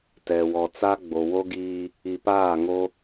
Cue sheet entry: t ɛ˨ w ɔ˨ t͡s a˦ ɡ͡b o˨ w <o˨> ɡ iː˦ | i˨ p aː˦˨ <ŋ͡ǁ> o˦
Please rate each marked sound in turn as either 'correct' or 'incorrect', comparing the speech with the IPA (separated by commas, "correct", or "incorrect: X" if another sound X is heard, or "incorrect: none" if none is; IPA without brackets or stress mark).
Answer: incorrect: o˦, incorrect: ŋ